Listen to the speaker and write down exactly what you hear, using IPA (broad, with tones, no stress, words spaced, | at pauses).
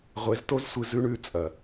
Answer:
ʁʷe˨˦zto˦zsʷɨ˧ zʉ˦ɳʉ˦˨ t͡sʼɐ˨